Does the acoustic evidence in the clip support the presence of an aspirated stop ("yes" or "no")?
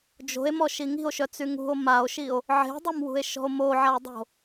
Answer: no